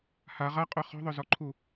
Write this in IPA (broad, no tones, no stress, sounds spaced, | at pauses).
h a ʁ a qʼ œ χ ɔ̤ ðˤ œ z ɔ ǃʰ u